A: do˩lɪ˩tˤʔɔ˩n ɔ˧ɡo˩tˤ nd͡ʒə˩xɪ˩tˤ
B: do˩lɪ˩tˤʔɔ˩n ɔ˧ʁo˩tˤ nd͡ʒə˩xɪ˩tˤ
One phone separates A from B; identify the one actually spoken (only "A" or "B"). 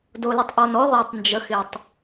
B